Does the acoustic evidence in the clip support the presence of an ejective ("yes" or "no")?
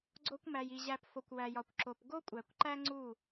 yes